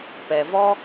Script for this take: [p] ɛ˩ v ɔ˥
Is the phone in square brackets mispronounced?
no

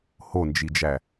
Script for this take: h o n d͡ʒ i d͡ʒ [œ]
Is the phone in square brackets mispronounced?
yes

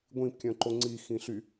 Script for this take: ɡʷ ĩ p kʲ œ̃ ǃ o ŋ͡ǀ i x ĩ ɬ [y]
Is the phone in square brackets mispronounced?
no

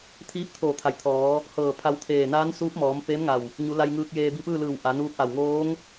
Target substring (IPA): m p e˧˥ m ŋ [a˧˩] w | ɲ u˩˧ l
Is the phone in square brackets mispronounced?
no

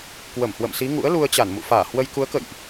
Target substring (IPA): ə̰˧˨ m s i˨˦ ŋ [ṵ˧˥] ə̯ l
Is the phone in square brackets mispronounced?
no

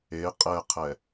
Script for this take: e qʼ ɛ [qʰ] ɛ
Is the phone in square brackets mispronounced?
no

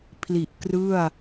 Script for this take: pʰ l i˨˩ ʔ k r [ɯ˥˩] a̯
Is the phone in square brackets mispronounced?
no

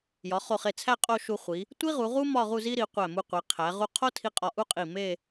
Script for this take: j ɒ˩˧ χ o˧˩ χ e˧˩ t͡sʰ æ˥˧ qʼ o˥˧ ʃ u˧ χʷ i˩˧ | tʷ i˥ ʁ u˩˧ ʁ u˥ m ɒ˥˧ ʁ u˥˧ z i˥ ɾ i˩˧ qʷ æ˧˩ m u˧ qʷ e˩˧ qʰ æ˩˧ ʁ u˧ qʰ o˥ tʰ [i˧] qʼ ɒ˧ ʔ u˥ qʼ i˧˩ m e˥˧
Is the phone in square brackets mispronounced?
no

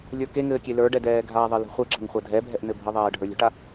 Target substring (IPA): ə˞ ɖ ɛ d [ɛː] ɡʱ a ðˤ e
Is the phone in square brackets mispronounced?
no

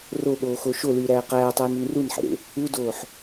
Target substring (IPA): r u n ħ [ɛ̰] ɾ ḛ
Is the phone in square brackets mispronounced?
yes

